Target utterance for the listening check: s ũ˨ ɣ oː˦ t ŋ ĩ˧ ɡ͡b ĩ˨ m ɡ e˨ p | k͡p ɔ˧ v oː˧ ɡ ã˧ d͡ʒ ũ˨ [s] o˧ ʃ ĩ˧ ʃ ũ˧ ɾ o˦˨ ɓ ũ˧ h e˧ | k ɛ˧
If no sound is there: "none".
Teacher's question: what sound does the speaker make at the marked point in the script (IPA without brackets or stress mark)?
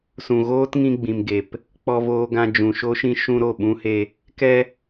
ʃ